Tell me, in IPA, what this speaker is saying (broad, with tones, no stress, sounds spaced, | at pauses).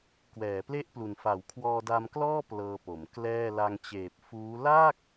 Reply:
k w ɛː˩˦ p l e˥˩ ʔ p l u˨˩ n f a˩˦ w kʰ w ɔː˧ d a˧ m k l ɔː˥˩ p l ɤː˧ p o˩˦ m k l ɛː˥˩ l a˧ ŋ t͡ɕ eː˨˩ p̚ f uː˦˥ l aː˥˩ k̚